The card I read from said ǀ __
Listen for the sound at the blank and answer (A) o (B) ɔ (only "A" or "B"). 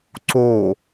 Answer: A